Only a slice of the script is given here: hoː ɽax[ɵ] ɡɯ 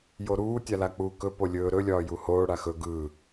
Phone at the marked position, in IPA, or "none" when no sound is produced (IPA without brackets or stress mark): ɵ